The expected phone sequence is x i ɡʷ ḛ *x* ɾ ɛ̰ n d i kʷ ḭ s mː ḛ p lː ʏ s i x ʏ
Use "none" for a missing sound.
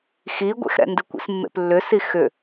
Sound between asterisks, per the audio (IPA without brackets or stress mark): x